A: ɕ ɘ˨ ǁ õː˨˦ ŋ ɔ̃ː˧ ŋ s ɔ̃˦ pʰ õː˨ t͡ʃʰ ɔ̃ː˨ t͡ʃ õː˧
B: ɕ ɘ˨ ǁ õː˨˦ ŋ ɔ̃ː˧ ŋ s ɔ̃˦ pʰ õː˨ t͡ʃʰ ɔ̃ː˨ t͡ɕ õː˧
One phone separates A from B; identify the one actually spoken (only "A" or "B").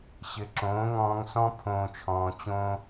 B